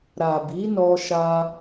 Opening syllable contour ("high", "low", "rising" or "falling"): low